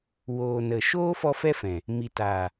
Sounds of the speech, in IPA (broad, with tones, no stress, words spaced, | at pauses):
woː˨nə˨ ʃoː˦fɔ˧ fɛ˦fɛ̃˨ | mi˨taː˨